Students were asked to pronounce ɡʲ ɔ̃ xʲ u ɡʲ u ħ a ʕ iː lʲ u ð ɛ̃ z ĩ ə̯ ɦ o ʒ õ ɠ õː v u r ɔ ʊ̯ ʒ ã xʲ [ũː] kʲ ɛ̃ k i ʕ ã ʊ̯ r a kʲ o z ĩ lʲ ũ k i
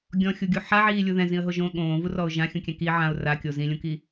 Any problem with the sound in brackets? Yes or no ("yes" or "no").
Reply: yes